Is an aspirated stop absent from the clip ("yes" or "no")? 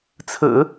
no